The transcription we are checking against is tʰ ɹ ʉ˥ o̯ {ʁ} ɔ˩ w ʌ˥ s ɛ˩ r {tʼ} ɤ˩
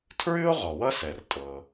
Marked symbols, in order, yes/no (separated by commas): yes, yes